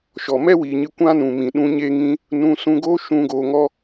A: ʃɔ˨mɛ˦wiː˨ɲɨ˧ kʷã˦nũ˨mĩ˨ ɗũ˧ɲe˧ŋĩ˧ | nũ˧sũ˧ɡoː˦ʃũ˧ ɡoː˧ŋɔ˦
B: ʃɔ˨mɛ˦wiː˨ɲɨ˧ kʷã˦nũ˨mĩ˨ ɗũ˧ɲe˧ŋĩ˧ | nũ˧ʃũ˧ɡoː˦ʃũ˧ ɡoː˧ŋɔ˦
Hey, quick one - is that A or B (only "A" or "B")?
A